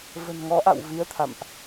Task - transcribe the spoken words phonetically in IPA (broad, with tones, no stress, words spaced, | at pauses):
və̤˨˩nŋɔ˨˦ʔa̰˧˨w vi˧ə̯t̪ʰa̰˧˨mʔ